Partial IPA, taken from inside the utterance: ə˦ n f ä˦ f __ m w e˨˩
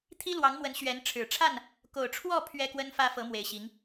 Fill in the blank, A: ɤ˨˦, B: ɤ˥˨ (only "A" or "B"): A